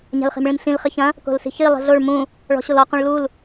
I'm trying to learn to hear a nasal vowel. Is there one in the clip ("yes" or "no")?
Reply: yes